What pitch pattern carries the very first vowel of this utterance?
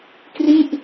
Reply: falling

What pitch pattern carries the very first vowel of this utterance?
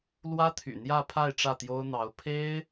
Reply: high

